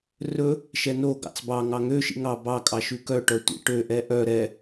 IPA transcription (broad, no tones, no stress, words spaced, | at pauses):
rɵ | ʃɛnoɡɑ̰t͡s bɑ ŋɑŋøʃḭ ŋɑ bɑ kʼɑʃʉkœʈœ tʷḭʈøʔɛ ʔœ ɾɛ